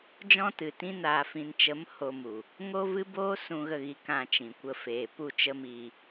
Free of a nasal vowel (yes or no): no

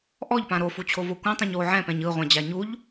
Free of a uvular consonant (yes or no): no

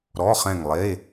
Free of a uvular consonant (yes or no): no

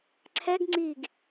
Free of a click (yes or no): no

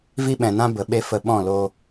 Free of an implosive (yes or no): no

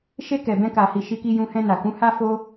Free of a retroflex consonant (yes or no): yes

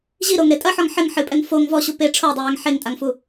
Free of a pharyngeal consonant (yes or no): no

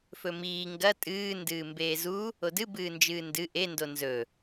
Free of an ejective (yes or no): no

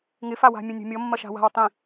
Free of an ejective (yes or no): yes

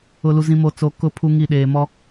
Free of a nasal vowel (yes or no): no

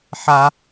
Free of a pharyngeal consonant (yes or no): no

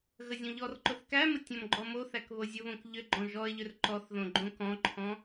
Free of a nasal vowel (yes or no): no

